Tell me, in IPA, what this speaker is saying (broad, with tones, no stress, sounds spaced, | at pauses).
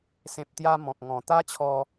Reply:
s ẽ˨ p̚ t̪ j a˧ m ɔ̃˨ k̚ ŋ ɔ̃˨˩ t̪ a˦ t͡ɕʰ ɔ˧